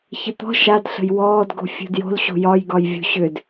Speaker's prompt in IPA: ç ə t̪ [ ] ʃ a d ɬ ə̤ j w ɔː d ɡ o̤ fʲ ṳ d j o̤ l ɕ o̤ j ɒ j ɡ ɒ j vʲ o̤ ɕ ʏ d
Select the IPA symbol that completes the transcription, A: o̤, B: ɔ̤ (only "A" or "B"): B